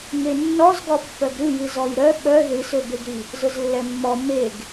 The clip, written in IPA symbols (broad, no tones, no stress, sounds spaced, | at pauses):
ŋ e nː ɔ z ɡ ɔ pː œ ɡ ɾ ɨ j ɨ z ɔ j ɾ œ ɓ œ ð ɨ s ø b e ɡ ɾ i | z ʊ z lː ɛ mː ɔ m e ɡ